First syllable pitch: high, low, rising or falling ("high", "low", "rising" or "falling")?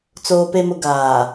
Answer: low